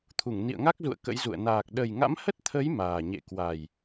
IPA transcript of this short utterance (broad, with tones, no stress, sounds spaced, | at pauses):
t̪ʰ u˧˩ ŋ n ḭ˧˨ ə̯ ŋ a˦˥ k̚ z ṵ˧˨ ə̯ k ə̰˧˥ j z ṵ˧˨ ə̯ n aː˨˩ k̚ ɗ ə˨˩ j ŋ a̰˧˥ m h ə˦˥ t̚ t̪ʰ ə˨˦ j m aː˨˩ ɲ ḛ˧˨ k w a˨˩ j